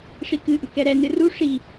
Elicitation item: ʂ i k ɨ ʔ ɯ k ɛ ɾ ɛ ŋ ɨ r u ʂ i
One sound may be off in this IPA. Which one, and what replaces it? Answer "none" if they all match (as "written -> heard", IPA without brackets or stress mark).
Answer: ŋ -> n